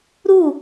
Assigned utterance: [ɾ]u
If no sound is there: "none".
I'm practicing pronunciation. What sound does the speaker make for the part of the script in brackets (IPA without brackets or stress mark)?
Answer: ɾ